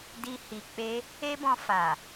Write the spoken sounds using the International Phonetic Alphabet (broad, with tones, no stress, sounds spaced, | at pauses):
d i˧ h i˨ k͡p e˧ | e˦ b ɔ̃˧ f a˨